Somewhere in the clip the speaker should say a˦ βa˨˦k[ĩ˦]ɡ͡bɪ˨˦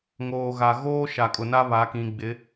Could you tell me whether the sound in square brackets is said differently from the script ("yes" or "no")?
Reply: yes